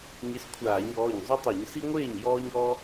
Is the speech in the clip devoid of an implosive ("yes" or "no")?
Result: yes